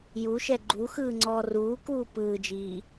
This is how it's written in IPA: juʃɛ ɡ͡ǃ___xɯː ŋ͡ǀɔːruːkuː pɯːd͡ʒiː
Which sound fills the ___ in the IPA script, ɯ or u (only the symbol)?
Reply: u